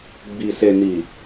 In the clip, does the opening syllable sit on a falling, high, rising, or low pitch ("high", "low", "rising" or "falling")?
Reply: low